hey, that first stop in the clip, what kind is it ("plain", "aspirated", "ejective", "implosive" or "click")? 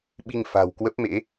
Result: implosive